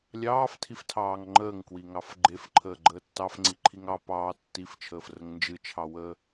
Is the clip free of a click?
no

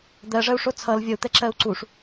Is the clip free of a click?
no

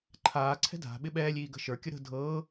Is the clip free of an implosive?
no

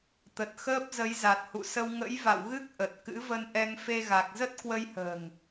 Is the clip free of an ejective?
yes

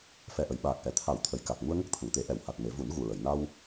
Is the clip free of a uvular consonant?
yes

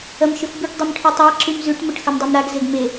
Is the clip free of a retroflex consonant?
no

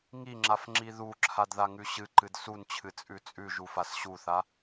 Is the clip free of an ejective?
no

